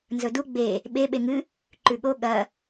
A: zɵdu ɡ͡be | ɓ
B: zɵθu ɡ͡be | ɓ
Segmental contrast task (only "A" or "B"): A